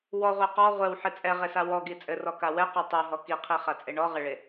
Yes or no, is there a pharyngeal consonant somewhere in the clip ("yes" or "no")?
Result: yes